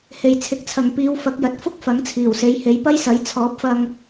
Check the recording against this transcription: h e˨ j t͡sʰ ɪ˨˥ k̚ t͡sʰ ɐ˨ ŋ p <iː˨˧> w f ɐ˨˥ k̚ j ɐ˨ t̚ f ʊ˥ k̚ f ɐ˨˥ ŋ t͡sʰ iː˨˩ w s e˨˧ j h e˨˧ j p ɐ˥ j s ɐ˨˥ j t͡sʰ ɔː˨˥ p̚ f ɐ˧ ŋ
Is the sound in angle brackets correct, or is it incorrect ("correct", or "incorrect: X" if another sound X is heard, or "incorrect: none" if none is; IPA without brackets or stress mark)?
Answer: correct